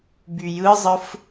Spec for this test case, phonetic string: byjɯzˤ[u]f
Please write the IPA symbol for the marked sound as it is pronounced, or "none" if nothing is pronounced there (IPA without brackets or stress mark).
ɯ